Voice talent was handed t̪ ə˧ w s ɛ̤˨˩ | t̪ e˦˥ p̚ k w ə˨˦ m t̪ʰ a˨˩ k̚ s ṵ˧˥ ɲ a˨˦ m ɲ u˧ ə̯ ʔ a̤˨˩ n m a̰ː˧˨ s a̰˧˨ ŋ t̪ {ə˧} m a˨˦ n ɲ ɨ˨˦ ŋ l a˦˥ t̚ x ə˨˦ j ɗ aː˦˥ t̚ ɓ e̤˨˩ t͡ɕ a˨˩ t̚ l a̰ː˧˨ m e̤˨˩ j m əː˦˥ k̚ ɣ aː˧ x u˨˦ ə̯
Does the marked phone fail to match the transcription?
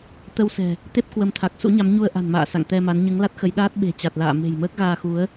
yes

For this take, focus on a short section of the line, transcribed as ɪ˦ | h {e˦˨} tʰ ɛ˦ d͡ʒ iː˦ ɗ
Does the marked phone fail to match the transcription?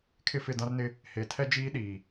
yes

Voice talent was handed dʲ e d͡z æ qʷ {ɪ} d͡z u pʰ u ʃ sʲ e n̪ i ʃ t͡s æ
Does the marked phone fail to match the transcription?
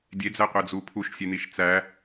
yes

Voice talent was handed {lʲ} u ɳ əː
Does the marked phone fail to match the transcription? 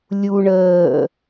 no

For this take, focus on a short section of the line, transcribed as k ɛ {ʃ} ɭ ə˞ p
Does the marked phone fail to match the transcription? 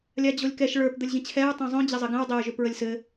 no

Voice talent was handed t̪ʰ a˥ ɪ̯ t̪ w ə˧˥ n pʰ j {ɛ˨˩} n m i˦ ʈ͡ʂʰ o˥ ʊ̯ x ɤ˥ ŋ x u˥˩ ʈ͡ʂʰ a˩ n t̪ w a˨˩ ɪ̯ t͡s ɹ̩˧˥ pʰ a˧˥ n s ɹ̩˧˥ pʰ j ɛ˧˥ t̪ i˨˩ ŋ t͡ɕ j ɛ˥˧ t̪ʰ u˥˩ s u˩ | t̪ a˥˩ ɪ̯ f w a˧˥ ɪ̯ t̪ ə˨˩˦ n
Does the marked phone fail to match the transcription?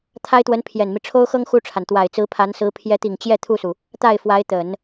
no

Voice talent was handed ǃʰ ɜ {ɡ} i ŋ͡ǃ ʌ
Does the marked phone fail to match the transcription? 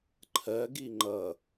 no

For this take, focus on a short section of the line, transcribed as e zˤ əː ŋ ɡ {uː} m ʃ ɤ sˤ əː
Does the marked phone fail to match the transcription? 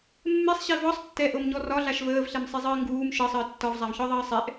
no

